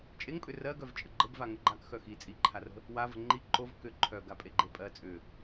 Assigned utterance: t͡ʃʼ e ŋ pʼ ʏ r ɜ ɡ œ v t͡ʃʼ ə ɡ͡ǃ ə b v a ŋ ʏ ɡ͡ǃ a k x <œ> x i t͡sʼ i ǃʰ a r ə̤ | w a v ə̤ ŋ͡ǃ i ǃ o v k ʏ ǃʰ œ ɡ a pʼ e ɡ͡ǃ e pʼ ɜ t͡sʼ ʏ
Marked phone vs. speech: correct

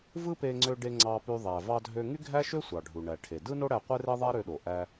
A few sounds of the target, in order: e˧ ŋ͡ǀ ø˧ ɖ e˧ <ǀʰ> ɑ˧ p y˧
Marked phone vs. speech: incorrect: ŋ͡ǀ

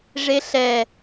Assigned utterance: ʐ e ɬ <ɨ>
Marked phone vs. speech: incorrect: ɛ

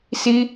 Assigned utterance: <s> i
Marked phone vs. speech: correct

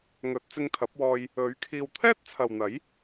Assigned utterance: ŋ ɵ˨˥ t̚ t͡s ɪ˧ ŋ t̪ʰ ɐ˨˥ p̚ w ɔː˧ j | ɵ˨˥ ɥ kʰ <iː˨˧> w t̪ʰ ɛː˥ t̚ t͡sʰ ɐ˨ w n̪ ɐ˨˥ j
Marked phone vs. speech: incorrect: iː˨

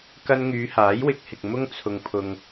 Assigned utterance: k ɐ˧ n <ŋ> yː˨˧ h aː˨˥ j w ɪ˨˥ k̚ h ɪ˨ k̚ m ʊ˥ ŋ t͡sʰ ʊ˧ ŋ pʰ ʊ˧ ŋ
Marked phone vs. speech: correct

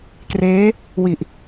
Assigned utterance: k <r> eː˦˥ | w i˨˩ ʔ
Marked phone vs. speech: correct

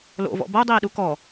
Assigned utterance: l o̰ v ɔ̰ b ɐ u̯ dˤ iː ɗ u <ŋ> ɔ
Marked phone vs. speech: incorrect: k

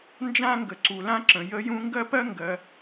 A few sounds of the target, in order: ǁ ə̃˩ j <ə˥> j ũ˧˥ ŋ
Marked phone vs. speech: incorrect: ə˧˥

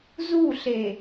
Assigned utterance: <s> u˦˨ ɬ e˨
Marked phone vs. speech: incorrect: z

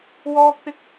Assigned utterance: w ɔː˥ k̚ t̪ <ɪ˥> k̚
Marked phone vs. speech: correct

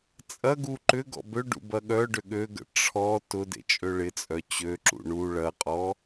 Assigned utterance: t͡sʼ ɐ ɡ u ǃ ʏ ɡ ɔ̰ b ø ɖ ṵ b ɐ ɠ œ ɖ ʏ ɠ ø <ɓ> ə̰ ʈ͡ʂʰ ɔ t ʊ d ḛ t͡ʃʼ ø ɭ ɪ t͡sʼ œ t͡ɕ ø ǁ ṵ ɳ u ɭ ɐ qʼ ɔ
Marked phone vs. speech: incorrect: ɡ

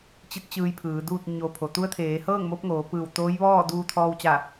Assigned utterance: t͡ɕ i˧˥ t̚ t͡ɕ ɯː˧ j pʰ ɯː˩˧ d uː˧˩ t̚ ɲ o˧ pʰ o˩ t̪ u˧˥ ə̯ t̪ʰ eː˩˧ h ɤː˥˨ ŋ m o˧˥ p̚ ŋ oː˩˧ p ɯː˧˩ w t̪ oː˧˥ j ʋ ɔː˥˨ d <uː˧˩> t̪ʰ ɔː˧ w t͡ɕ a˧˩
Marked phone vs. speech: incorrect: uː˧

